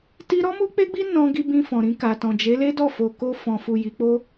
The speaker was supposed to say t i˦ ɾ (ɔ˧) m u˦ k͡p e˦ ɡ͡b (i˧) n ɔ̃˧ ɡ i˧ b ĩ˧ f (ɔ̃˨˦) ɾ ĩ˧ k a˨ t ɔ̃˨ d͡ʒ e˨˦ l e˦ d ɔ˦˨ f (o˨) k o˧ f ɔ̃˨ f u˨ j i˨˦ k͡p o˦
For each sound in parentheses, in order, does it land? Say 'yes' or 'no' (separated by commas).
no, no, no, yes